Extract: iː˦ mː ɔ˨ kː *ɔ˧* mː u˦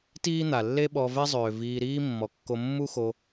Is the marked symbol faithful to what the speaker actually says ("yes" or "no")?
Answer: no